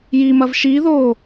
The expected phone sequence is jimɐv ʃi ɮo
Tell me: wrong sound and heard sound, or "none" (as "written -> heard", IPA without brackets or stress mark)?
ɮ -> ð